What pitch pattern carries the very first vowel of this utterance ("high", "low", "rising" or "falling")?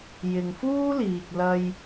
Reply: low